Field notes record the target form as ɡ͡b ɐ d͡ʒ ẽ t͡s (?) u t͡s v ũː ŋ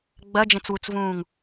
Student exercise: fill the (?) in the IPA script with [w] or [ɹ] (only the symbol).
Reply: w